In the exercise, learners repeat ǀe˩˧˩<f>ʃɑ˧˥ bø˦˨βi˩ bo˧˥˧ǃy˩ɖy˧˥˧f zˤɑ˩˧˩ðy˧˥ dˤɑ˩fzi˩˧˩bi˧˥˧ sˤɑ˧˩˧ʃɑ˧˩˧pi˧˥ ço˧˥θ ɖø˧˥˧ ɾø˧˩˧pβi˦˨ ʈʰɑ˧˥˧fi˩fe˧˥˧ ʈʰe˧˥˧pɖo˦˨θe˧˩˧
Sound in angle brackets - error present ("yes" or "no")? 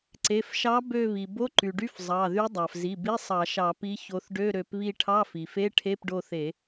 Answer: no